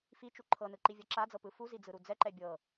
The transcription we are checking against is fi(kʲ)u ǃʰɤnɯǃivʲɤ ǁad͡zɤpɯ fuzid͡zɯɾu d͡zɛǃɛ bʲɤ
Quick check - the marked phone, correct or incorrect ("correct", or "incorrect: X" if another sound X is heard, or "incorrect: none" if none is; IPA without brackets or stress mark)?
incorrect: t͡ʃ